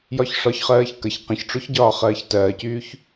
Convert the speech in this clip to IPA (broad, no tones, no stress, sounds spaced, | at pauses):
j ɒ ç ʂ ɒ ç χ ɜː ç k ə ç q ə̃ ç ʈ͡ʂ o ç ɟ ɒː χ ɜː ç t ɜː c yː ç